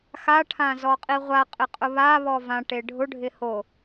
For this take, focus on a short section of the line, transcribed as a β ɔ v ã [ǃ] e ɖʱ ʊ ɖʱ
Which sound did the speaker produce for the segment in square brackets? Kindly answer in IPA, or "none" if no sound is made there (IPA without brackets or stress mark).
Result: ʈ